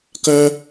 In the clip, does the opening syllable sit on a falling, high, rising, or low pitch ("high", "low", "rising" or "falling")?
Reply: high